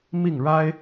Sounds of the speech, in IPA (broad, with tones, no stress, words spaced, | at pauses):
mi˥˩ŋɻa˥ɪ̯